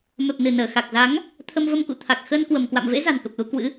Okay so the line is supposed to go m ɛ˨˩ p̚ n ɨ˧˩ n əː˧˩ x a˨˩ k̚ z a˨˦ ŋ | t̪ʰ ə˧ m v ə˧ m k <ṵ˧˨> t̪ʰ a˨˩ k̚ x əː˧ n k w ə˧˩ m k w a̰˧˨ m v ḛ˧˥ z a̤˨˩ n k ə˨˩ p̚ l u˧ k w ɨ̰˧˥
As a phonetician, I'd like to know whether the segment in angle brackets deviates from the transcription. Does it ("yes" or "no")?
no